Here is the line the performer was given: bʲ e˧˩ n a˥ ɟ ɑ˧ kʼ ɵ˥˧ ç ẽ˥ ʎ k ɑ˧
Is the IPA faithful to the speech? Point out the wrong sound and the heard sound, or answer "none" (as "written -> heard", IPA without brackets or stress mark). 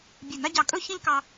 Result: none